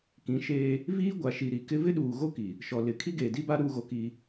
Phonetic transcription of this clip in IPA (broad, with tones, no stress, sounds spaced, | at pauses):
k ĩ˨˦ ʃ eː˦ | v iː˦ ɡʷ a˨ ʃ i˨ ɾ i˨ k ɪ˦ v ɪ˦ ɗ uː˨ ɣ o˦ k i˨ | ʃ ɔ˨ l ɪ˨ kʰ i˦ ɡ eː˨ d i˦ b a˦ ɾ uː˦ ɣ o˦ k iː˦